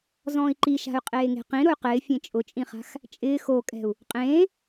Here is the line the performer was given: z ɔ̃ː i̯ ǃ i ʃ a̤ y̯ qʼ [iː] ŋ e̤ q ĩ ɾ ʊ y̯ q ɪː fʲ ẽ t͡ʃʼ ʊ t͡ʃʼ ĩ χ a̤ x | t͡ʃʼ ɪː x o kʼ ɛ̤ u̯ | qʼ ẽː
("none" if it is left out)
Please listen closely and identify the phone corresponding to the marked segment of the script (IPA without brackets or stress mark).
eː